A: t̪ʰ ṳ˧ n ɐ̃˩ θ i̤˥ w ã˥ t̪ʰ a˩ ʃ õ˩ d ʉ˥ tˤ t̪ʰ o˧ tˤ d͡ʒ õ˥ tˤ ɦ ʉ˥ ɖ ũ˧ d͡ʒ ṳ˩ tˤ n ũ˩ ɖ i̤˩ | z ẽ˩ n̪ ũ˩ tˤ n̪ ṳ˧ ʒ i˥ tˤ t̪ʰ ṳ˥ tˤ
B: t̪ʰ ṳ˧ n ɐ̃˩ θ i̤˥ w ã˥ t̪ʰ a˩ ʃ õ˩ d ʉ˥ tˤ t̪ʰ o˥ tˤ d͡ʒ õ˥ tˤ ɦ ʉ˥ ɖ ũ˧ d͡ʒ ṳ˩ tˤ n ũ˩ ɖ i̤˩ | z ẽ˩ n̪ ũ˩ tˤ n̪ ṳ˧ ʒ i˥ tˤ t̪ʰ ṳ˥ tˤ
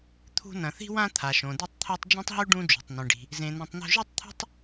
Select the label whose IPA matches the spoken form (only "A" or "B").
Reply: B